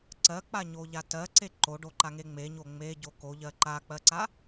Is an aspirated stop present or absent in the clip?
absent